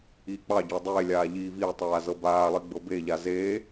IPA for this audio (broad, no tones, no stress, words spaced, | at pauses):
iːk͡pɑɟɑ dˤeːlʲaː ʎiːviːtˤaː zɤbaːlˠi ɡ͡bɤbeʎa zeː